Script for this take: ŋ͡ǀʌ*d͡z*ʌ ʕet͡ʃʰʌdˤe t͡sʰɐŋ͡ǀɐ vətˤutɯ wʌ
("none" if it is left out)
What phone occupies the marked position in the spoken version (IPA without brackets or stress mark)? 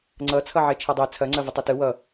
t͡sʰ